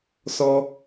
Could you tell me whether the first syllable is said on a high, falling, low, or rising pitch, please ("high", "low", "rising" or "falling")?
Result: high